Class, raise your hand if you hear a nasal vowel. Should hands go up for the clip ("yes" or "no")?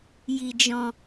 yes